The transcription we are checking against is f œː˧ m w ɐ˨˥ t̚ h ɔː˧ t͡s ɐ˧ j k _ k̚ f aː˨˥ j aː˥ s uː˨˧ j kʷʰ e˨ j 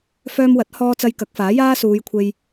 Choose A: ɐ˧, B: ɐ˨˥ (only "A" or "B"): B